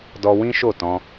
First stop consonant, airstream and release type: plain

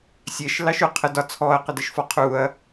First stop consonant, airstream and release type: aspirated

